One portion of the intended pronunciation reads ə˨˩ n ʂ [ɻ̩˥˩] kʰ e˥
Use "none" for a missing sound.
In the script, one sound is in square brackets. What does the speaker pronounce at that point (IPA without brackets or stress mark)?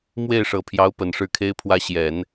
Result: ɻ̩˥˩